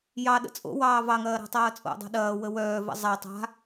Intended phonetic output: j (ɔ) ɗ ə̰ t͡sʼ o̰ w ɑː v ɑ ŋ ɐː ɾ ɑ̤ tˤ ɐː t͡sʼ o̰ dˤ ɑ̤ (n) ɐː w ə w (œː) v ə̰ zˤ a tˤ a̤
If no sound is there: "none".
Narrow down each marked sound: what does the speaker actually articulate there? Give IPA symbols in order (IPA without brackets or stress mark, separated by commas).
ɑ, ɗ, œː